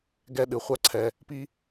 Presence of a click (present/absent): present